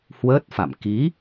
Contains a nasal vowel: no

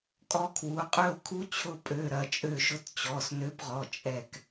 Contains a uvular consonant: yes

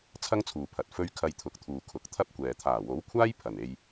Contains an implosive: no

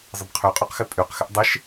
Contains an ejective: yes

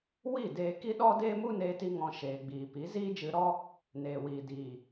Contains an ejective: no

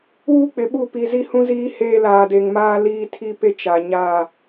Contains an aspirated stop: yes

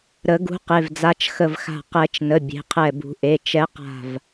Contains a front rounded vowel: no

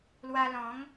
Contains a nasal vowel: yes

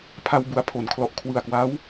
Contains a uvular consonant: no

